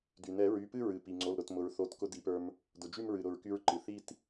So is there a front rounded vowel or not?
yes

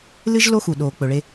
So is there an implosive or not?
yes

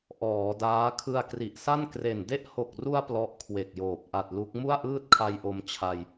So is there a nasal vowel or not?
no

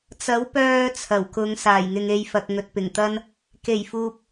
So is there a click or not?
no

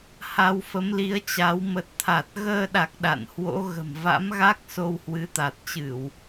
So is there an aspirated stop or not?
yes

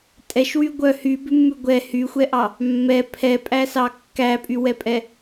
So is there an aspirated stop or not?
yes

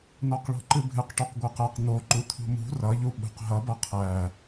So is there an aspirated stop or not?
yes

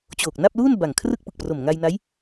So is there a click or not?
no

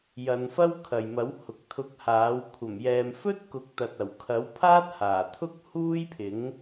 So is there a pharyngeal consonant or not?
no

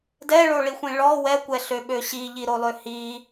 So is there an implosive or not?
yes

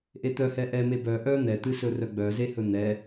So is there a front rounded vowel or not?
yes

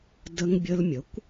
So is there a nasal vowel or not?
no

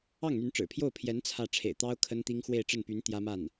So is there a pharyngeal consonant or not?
no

